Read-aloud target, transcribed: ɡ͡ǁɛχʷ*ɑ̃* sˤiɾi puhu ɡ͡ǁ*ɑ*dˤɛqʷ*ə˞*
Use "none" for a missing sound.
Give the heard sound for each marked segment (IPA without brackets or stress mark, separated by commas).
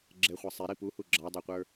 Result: ɑ, ɑ, ə˞